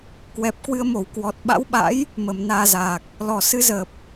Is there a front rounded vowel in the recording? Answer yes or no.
no